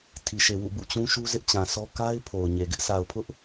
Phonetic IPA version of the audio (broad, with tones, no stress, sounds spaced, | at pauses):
tʰ i˨ ʃ e˨ w ṵ˦˨ b ṵ˦˨ t͡ɕ ũ˦ ʃ u˦ z ɪ˦ ʔ t͡ɕ ã˨ sʰ ɔ˦ k a˦ ɪ̯ pʰ o˨ ʊ̯ ɲ e˨ ɡ ɪ˦ ʔ s a˨ ʊ̯ pʰ ʊ˦ ʔ